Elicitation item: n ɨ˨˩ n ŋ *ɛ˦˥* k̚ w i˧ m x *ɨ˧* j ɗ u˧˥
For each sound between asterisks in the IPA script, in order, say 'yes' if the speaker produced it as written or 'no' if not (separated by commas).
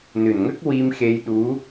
no, no